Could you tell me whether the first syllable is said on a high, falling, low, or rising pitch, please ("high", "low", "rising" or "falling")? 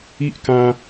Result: high